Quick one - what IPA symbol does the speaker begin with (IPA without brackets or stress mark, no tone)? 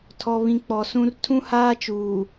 tʰ